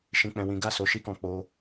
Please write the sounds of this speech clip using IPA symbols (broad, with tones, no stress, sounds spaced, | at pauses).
ʃ ĩ˨ k͡p ɛ̃˨ w ĩ˨˦ ɡ a˦˨ s o˨˦ ʃ i˦ k ɔ̃˦˨ k͡p o˧